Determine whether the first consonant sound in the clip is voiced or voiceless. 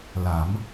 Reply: voiced